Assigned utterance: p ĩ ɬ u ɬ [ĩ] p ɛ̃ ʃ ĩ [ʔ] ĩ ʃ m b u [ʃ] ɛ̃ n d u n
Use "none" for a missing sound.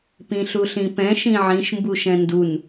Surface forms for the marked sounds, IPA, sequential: ĩ, ʕ, ʃ

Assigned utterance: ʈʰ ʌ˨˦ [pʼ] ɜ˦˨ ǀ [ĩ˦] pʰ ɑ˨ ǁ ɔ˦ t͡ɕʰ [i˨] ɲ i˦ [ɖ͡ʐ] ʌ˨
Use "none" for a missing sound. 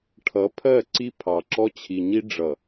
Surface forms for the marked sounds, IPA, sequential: pʰ, i˦, i˨, ɖ͡ʐ

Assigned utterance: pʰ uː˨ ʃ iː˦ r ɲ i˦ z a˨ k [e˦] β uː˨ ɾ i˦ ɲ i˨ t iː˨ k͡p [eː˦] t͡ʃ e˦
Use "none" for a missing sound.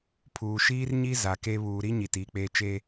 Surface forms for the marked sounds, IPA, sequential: e˦, eː˦

